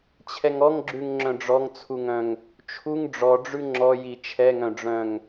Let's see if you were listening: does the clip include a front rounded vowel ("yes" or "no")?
yes